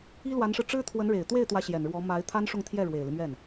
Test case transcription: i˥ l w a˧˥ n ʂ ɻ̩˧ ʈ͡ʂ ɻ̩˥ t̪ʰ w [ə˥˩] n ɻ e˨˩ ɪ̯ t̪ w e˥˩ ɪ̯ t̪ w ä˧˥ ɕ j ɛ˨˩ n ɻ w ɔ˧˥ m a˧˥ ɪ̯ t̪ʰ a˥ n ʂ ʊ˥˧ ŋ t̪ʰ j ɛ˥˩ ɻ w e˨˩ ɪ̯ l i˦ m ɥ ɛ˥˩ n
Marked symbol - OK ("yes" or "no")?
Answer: no